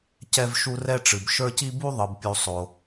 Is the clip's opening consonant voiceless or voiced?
voiceless